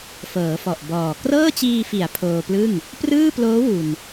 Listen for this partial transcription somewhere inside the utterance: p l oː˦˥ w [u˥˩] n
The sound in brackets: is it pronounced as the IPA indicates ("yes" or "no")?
no